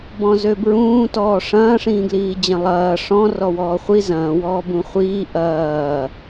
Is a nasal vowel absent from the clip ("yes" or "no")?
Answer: no